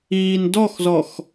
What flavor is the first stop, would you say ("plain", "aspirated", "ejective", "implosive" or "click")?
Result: plain